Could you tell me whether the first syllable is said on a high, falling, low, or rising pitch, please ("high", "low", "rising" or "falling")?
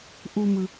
low